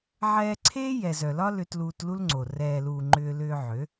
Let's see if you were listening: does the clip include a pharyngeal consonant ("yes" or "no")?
yes